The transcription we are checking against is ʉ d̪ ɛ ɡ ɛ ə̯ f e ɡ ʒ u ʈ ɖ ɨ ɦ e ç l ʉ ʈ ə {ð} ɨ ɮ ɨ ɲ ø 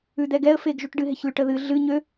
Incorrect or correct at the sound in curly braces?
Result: correct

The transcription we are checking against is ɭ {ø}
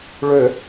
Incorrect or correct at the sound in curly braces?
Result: correct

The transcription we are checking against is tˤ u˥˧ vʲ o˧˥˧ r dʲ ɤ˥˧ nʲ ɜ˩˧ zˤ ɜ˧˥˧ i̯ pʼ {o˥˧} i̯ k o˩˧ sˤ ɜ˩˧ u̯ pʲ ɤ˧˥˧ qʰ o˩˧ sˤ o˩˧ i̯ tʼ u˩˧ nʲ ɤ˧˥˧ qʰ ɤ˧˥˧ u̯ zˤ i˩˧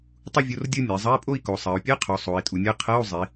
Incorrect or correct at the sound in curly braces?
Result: correct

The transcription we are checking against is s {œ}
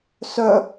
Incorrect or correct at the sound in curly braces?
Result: correct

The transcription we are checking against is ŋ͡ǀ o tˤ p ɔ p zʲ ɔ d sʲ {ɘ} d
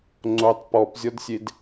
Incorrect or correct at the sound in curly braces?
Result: incorrect: e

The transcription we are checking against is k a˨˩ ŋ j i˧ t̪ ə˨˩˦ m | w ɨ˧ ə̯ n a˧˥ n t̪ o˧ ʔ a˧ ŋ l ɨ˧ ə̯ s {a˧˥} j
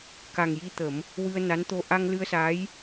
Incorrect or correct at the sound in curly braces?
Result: correct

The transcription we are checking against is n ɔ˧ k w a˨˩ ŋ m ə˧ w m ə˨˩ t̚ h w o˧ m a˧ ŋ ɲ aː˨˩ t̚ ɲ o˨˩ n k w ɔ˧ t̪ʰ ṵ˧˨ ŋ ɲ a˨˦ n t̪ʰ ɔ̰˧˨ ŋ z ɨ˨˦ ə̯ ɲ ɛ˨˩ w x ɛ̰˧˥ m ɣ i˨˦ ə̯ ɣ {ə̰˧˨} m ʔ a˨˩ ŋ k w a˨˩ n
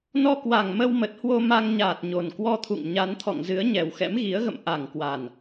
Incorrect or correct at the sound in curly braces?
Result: correct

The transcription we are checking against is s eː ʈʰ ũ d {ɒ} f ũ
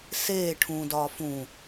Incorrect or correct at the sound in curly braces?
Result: incorrect: ɒː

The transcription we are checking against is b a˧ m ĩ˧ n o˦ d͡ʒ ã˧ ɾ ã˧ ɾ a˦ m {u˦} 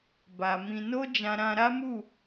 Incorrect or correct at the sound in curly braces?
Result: incorrect: u˦˨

